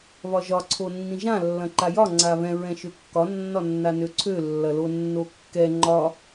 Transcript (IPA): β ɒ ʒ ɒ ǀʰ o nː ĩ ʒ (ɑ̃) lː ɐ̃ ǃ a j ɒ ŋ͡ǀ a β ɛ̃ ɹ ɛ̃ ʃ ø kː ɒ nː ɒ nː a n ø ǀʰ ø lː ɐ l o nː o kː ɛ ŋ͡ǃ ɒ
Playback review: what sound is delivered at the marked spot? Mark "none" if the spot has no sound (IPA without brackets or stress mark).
ã